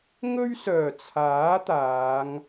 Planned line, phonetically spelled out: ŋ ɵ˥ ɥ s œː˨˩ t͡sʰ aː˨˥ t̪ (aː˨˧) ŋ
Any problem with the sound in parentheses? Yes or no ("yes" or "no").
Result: no